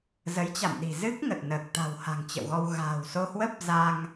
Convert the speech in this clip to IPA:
z ə˨˦ j t͡ɕ a̰˧˨ m ɗ i̤˨˩ z ɨ˦˥ k̚ ŋ ə˨˩ t̚ n əː˨˩ k̚ t̪ a̤˨˩ w h a̤˨˩ ŋ t͡ɕ ə̰˧˨ w ɣ ɔ˧ w ɣ a̤ː˨˩ w s o˧ h w ə˦˥ p̚ z a˧ ŋ

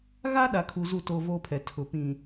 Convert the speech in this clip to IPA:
ɣ a˦ ɗ a˨ kʰ u˨ z u˦˨ t oː˦ v oː˦ pʰ ɛ˨ tʰ ʊ˨ p ĩ˨

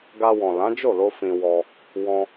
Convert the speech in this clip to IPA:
ɡ a˧ w ɔ̃˨ l ã˨˦ d͡ʒ o˦˨ l o˧ f ĩ˧ w ɔ˧ | w ɔ̃˧

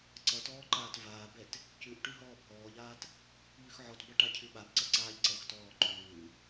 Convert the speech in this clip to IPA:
ǀ ʌ t ɔː ǃ aː t v aː b ɛ t | c ʉ ʔ ʈ ʉ ɦ ɔː bʱ ɔː ʎ aː t | ʎ ʉ x ʕ ɔ t b ʌ ʈ a cʰ ʉ ɓ a b ǀ ʌ ǀ aː ʎ ǀ ʌ x t ɔː ǃ ʉː

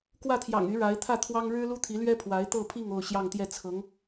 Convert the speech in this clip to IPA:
k w ä˥˩ t̪ʰ j ɑ̰˨˩ ŋ y˧˥ ɻ a˧˥ ɪ̯ t̪ʰ ä˥˩ t̪ʰ w ɑ˥ ŋ ɻ ɻ̩˥ l u˥ t̪ʰ i˧˥ l ɥ ɛ˥ pʰ w a˧˥ ɪ̯ t̪ ɤ˥˧ pʰ i˥˧ ŋ o˥˧ ʊ̯ ɕ j ɑ˥˧ ŋ t̪ j ɛ˥˩ t͡sʰ ɤ˧˥ ŋ

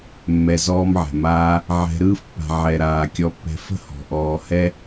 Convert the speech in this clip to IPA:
mː ɛ˨ z ɔː˧ m ʕ ɛ̤˨ m aː˧ | ʕ ɛ̤˧ ɾ ɯː˧ f pː a̤˨ ʕ ɛ˨ ɾ aː˨ kʲ ɔ˧ pː ɛ̤˧ f ə̤˦ h ɔ̤˨ ʔ ɔː˧ h ɛ˦

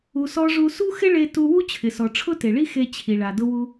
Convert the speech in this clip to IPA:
u˩ s ɔ˧ ʐ u˧ s u˥ x ɪ˥ ɭ e˧ t u˧ w u˥ t͡ɕʰ ɪ˩ s ɔ˩ ʈ͡ʂʰ ʊ˥ t e˩ ɭ i˥ x e˧ t͡ɕʰ i˩ ɭ a˩ d ʊ˧ w u˧

